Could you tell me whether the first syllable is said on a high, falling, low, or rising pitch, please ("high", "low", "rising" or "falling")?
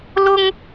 high